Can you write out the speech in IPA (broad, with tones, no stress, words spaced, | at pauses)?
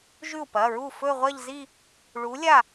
ʒʉ˥˩u̯pɐ˩˧˩ɹu˥˩ fɵ˥˧ʁʷɐ˥˧ʎzi˥˧ | ɭu˨˥lʲa˥˩